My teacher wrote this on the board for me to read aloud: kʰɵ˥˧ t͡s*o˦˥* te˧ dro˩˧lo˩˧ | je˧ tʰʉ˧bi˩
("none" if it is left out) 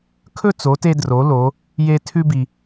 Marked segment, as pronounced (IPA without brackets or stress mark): o˩˧